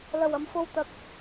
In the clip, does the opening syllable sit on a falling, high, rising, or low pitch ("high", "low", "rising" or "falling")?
low